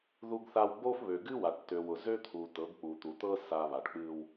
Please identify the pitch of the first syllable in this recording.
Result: high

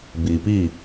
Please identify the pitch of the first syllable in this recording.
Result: low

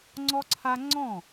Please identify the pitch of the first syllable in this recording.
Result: high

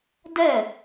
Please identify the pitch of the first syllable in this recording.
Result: falling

